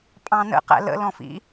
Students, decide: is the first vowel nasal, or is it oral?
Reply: nasal